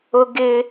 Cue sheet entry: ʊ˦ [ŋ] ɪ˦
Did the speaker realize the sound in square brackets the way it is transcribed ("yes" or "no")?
no